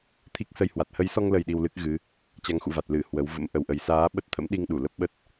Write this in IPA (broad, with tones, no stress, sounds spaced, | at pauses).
t̪ʰ i˦˥ k̚ s ə˧ j h w a˨˩ t̚ h ə˨˦ j s ɔ˧ ŋ l ə˨˩ j ɗ i˧ w l ɨ˦˥ k̚ ɣ ɨ˨˦ | t͡ɕ a˨˦ ŋ x ṵ˧˨ v a˨˩ t̚ l ɨ˧˩ h w ə˨˦ w v ə̰˧˥ m ʔ ə˨˩ w ʔ ə˨˩ j s aː˨˦ ɓ ə˦˥ t̚ t̪ʰ ə̰˧˥ m ɗ i˧ ŋ ɗ u˧˩ l ə˦˥ p̚ ɓ ə˦˥ t̚